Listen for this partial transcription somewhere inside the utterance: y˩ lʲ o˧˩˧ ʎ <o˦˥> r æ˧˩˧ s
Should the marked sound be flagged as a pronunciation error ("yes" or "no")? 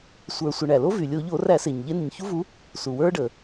yes